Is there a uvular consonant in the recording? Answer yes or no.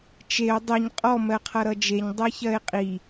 yes